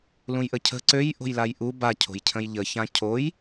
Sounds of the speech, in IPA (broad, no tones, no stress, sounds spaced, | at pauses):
l ũ j ʔ ə cʰ ə̤ ǀ ø j ʔ o̤ j l a j ʔ u b a cʰ o̤ j cʰ ə̃ j ʎ ə ç ã cʰ o j